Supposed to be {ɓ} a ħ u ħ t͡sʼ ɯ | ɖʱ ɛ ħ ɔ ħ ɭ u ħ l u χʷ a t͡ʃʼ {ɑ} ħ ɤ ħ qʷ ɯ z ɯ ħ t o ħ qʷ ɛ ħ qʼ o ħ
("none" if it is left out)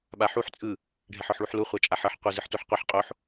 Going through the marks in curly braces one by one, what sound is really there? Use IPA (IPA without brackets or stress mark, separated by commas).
ɓ, a